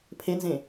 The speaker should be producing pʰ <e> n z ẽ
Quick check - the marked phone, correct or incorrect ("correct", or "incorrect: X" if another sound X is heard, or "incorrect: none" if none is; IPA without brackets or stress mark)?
correct